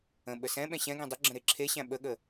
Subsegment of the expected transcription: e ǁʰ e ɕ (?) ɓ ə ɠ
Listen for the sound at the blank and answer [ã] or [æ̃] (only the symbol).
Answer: æ̃